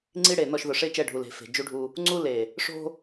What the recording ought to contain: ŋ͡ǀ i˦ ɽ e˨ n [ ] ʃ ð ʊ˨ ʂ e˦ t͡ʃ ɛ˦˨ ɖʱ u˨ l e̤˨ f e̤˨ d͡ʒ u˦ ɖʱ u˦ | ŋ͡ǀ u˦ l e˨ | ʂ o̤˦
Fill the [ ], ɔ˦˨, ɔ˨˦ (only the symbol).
ɔ˦˨